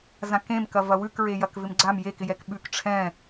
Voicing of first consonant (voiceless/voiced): voiced